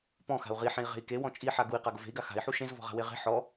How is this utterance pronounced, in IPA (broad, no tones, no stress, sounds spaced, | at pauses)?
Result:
p ɔ̃ x a̤ u̯ ʁ i ħ ẽ i̯ ʁ e̤ i̯ k e w ɔ̃ t͡ʃʼ i ħ a ɡ u i̯ q a ɡ ʊ v e̤ i̯ ɡ a x a̤ i̯ ħ u ʃ ẽ z v ɔ̤ ʁ a̤ w e ʁ e̤ ħ ɔ